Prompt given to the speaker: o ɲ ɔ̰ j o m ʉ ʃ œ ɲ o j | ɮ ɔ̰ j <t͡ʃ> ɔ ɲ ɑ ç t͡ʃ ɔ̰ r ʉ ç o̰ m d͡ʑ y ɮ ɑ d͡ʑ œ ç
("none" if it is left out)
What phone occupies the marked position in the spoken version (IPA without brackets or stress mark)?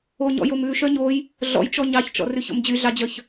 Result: t͡ʃ